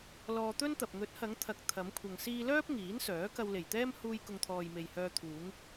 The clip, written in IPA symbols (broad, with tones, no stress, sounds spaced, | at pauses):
l ɔː˧ t̪ ɵ˥ n t̪ ɐ˨ p̚ ŋ ɵ˨˥ t̚ h ɐ˨˧ ŋ t̪ʰ ɐ˨ k̚ t̪ʰ ɐ˨˧ m kʷʰ ɐ˨ ŋ s iː˧ l œː˥ p̚ ŋ iː˨˥ n s œː˨˥ k ɐ˧ w l e˨˩ j t̪ ɛː˥ m h uː˧ j k ʊ˨ ŋ t̪ʰ ɔː˨ j m e˨ j h œː˧ t̪ʰ uː˨˧ ŋ